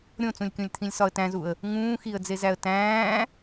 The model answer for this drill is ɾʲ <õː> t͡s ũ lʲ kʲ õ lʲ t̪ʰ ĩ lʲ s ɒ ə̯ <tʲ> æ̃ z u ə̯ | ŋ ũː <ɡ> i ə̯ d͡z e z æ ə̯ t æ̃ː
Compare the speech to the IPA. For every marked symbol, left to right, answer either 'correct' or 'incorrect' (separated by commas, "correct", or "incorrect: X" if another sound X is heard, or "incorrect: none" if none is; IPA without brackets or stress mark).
incorrect: õ, incorrect: t, incorrect: x